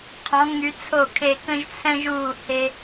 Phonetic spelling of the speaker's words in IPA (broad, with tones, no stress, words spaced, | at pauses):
qʰɔ̃˨˥ ŋy˨˥t͡sʰo˥˨kʰe˥˨ kə̃˥ʒt͡sʰɛ̃˥ʒuː˥˨ he˥